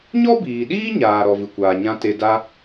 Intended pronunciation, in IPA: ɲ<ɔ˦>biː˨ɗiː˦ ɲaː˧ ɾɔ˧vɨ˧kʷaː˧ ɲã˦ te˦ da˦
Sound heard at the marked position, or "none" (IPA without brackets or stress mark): ɔ˦